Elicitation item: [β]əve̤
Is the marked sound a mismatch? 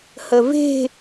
yes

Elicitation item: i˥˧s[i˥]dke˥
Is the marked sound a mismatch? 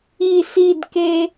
yes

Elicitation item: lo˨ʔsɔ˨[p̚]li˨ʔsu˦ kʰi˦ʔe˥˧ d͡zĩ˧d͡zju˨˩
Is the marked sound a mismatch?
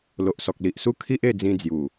yes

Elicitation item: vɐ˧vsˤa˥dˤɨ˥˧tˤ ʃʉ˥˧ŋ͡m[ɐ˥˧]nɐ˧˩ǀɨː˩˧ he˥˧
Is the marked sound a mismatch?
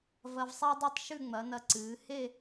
yes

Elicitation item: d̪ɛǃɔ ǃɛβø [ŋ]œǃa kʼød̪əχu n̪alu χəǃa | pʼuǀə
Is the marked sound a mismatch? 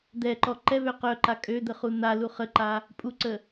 yes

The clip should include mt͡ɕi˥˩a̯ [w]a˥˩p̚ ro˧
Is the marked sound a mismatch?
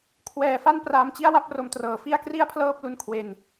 no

